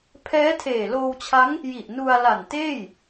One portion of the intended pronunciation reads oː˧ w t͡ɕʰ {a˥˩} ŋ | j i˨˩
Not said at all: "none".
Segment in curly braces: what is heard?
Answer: a˦˥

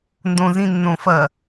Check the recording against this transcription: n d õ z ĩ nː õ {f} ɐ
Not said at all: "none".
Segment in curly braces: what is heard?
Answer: f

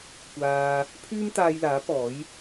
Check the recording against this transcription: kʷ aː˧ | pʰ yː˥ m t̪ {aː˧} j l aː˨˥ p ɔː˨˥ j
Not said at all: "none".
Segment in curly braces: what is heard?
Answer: aː˧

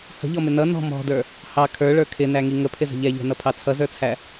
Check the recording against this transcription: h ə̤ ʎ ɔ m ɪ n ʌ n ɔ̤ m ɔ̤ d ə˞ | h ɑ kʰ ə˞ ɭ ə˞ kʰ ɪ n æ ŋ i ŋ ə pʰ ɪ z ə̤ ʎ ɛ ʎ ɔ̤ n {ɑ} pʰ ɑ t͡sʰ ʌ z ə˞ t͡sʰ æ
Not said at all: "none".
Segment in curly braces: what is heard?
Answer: ʌ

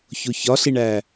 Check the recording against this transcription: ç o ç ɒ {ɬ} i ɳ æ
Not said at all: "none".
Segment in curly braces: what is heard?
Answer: ɬ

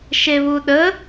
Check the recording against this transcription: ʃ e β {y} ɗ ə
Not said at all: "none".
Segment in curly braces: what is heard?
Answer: u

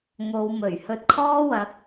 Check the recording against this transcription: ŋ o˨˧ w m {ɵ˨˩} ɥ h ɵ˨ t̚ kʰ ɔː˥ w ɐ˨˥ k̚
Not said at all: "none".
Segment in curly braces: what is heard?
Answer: ɵ˨˩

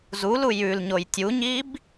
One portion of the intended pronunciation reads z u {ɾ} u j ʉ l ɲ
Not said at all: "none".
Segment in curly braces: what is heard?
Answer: l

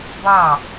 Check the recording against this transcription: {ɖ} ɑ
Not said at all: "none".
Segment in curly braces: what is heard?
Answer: b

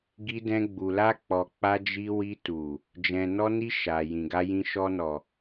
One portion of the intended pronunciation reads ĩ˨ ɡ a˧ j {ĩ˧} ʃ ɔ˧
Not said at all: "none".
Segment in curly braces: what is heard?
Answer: ĩ˧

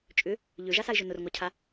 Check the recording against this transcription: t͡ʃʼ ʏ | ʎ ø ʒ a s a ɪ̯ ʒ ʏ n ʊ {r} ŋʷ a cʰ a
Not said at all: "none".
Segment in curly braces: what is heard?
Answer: r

